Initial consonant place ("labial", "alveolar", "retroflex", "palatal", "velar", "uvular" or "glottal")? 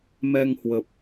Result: labial